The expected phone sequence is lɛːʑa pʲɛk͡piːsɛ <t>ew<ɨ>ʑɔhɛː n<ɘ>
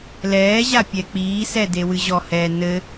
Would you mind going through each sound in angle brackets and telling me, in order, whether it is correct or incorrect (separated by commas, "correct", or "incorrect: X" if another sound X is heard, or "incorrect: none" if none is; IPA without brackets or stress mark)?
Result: incorrect: d, correct, correct